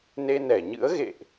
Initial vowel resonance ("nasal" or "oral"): oral